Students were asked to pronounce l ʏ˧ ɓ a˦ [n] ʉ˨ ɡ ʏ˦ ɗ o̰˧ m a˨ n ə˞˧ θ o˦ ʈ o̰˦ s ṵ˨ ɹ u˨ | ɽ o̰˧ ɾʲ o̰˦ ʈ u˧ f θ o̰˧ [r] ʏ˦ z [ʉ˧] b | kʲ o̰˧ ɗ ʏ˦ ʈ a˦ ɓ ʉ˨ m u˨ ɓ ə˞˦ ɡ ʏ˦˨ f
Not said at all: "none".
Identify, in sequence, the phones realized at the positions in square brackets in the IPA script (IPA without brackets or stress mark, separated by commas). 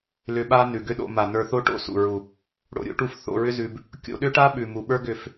n, ɹ, ʉ˧